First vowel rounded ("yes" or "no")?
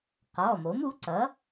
yes